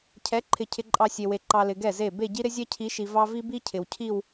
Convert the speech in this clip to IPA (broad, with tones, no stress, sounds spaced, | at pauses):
cʰ ɛ˨˦ ǃʰ ɪ˨ cʰ ɪ˨ ǃʼ ɑ˨ sʲ e˨ w e˨ ǃ ɑ˨ l ɪ˨ ɡ ɛ˦˨ z e˦˨ b e˦˨ ɟ i˦ ɾ ɪ˦ zʲ ɛ˦ cʰ i˨˦ ʃ i˨ v ɑ˦ v i˦ b i˦ cʰ ɪ˨ w cʰ i˦˨ w